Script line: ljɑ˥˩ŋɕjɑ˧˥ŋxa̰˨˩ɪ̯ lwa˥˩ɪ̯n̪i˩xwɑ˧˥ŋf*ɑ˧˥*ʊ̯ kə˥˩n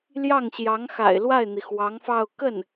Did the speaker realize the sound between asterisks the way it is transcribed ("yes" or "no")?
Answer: no